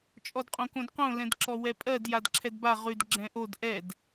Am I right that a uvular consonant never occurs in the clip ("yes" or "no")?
no